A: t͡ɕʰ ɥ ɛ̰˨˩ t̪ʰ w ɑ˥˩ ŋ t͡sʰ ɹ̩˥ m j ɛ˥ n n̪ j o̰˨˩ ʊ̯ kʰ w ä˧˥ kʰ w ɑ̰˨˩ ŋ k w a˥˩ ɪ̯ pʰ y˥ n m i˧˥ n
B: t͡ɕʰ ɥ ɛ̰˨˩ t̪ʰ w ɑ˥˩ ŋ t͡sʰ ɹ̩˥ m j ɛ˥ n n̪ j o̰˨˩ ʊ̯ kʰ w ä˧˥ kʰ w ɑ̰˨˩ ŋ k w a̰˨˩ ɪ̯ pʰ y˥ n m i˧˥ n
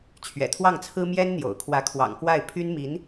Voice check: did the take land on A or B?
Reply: A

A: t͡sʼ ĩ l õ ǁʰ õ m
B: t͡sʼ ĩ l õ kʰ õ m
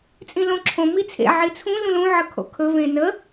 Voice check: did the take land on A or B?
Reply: A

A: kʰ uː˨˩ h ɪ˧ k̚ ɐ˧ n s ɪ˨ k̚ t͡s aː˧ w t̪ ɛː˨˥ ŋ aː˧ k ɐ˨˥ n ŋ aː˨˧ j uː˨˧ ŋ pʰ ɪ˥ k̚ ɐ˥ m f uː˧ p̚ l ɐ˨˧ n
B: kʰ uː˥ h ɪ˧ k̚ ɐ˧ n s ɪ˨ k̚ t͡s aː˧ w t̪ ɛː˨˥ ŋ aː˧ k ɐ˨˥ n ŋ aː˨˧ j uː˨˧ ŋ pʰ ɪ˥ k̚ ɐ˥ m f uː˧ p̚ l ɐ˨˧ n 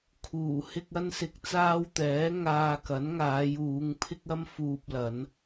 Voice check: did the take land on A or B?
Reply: A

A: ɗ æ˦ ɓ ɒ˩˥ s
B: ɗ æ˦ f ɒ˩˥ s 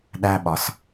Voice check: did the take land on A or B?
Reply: A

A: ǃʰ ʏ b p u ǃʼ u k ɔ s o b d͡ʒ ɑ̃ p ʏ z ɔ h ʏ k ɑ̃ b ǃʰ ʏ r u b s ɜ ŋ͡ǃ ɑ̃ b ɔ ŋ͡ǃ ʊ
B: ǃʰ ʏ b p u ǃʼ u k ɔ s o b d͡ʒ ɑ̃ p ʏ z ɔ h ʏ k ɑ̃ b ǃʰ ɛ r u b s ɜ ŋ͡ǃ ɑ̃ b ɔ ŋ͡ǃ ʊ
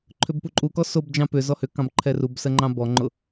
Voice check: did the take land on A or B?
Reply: B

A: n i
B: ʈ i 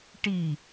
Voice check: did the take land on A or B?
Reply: B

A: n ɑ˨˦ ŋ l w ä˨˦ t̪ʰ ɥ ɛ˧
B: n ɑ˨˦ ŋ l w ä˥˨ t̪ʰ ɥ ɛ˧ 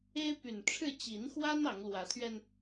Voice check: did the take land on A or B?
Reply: A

